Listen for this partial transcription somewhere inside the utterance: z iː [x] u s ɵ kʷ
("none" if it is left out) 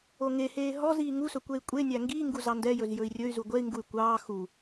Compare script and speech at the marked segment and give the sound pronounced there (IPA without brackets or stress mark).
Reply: ŋ